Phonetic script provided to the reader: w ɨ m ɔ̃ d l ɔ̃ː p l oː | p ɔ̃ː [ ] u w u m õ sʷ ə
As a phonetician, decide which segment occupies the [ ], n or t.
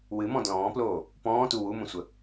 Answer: t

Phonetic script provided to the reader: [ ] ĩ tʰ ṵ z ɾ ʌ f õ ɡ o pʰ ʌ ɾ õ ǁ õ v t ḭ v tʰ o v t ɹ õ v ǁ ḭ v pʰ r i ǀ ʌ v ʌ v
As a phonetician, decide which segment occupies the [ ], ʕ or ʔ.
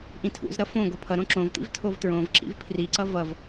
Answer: ʔ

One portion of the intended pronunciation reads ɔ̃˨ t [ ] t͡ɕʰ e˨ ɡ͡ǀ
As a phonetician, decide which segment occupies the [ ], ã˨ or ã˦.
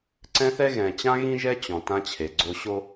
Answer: ã˦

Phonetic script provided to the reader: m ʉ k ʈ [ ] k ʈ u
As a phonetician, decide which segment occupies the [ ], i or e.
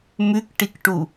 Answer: i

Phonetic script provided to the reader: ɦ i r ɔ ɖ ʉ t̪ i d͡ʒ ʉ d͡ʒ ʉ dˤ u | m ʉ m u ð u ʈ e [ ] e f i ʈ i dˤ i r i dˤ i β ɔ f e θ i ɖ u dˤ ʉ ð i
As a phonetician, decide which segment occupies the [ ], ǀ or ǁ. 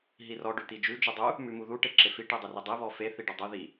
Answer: ǁ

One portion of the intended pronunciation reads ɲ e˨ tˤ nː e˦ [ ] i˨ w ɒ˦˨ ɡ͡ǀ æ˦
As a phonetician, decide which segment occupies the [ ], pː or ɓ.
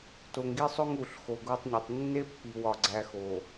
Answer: pː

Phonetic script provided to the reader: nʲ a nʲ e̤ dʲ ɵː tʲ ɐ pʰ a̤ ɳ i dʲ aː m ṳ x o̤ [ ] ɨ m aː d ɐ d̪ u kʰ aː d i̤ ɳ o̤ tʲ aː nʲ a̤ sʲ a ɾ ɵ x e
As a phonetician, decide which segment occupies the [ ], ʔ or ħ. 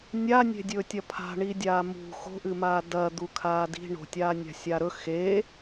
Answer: ʔ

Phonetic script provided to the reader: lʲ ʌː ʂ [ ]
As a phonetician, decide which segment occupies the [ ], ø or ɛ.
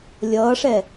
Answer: ɛ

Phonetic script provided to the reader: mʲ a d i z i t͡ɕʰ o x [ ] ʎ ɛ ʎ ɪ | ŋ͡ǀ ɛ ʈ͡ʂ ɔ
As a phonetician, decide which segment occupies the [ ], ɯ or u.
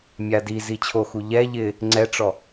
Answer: u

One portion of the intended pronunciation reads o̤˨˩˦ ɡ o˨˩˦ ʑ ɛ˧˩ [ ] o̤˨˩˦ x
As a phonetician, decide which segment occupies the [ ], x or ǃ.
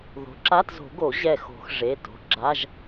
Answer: x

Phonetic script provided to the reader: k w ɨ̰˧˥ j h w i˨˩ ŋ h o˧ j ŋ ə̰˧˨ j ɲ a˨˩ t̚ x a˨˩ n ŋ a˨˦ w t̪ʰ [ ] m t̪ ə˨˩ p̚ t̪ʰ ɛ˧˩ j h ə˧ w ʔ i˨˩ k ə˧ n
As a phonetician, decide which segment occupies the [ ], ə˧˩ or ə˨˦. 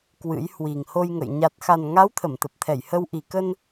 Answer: ə˧˩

